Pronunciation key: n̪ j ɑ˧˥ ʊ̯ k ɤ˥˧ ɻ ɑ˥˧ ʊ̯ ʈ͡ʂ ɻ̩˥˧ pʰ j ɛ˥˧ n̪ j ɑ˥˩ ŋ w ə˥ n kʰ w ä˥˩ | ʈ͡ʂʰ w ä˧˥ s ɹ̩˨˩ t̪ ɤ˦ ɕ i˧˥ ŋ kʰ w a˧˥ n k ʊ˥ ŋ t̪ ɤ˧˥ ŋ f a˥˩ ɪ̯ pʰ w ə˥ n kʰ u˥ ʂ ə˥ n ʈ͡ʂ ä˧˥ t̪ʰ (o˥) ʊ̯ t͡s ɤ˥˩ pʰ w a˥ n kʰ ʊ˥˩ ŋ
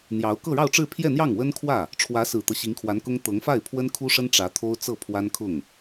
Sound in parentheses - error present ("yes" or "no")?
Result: no